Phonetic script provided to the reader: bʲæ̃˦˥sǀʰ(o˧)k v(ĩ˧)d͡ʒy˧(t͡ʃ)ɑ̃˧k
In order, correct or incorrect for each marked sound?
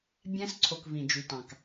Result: correct, correct, incorrect: t

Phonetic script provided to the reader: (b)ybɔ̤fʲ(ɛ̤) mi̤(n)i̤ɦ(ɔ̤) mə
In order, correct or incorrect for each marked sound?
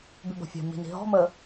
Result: correct, correct, correct, correct

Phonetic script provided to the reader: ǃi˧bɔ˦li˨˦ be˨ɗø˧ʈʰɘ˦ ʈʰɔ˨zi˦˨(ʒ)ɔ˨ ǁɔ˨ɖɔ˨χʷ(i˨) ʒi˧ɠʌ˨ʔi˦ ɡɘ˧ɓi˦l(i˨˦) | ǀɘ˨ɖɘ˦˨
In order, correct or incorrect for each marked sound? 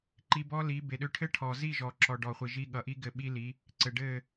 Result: correct, correct, correct

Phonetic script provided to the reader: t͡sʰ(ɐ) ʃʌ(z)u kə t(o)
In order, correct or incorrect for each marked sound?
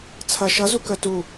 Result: correct, correct, incorrect: u

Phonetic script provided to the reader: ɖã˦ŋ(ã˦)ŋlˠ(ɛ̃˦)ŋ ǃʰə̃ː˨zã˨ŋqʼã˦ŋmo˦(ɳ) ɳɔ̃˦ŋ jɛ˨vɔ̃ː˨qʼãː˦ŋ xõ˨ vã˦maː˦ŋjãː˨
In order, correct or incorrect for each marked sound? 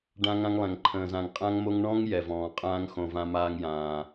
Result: correct, incorrect: ɛ̃˨, incorrect: ŋ

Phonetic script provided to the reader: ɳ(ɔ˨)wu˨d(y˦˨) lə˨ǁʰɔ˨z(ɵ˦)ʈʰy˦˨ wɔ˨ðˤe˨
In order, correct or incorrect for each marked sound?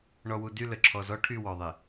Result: correct, correct, incorrect: ɔ˦

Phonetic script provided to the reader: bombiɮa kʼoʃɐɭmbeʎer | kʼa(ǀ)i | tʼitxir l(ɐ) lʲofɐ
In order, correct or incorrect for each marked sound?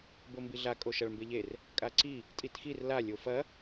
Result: correct, incorrect: a

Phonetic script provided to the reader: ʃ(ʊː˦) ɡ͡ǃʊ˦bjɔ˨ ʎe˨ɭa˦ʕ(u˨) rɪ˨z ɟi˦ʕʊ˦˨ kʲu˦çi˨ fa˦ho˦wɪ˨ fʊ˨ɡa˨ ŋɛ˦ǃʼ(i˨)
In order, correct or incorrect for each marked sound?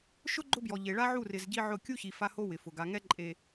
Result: incorrect: ʊ˦, incorrect: u˦˨, incorrect: e˨

